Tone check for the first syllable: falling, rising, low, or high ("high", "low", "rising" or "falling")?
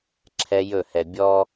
high